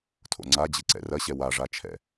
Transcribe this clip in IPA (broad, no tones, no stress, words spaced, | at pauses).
tʰo̰ŋ͡ǀad͡ʑɨǀɛ̰ rɐɕɛ waʐat͡ʃʰɛ̰